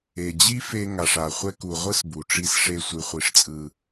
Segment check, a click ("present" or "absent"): absent